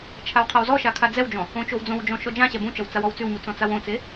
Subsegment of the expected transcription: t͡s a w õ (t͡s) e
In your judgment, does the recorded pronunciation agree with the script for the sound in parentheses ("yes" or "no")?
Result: yes